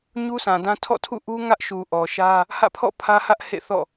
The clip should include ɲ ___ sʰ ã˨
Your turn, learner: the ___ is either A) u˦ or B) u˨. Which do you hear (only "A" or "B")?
A